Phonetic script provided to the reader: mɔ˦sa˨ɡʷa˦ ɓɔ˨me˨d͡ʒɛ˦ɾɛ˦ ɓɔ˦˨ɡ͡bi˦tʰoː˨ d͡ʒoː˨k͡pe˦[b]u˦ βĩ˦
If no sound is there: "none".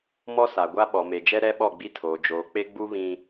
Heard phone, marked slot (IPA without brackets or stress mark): ɡ͡b